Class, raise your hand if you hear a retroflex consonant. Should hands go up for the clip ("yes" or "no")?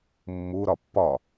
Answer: no